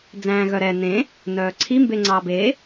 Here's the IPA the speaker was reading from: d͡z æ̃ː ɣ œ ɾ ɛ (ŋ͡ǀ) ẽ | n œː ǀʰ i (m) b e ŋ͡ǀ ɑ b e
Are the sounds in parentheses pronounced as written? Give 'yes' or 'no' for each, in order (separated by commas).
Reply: no, yes